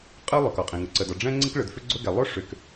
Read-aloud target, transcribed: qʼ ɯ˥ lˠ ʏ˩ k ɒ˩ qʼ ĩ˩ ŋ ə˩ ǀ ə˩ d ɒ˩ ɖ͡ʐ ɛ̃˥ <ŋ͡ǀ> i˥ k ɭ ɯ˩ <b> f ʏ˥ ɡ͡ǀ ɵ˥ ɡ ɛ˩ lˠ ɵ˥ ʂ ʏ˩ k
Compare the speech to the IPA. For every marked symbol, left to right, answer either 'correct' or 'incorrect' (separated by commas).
correct, incorrect